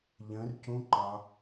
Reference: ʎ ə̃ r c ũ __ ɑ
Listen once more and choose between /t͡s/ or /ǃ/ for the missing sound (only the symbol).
ǃ